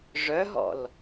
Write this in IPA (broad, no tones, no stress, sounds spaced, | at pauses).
ʐ œ ɦ ɔ̰ l